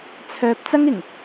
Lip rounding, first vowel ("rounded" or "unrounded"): rounded